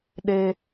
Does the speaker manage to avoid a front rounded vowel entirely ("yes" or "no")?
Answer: yes